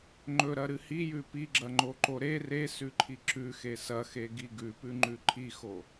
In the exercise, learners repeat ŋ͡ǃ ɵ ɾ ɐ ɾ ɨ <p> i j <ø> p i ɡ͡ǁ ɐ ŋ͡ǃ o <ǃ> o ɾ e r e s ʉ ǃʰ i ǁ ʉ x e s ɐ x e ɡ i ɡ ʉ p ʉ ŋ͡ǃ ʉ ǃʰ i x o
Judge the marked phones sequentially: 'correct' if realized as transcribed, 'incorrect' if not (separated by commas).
incorrect, incorrect, correct